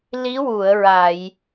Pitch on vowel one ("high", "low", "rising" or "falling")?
rising